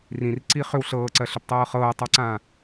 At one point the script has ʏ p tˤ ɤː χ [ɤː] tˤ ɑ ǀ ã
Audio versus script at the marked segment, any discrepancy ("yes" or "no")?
no